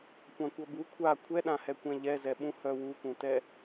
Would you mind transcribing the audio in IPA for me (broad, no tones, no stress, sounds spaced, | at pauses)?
kʷ ã kʷ ʌ b u kʷʰ a kʷʰ ɛ ɗ ã h ɛ kʷ ɛ̃ ʎ ɛ z ɛ ɓ ũ h œ w u k ũ t ɛ